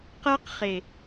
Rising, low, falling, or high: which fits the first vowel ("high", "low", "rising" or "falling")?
high